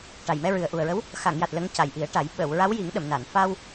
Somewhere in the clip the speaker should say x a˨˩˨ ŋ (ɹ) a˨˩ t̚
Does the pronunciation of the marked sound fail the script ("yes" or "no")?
yes